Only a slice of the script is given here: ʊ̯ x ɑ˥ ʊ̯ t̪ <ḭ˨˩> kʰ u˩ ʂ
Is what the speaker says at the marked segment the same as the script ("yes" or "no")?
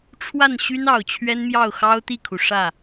no